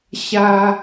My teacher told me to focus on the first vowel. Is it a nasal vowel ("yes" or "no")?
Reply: no